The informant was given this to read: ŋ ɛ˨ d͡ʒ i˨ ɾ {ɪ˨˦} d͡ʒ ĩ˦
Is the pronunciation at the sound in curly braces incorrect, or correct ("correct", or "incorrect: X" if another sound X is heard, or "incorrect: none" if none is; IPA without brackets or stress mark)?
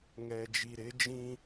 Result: correct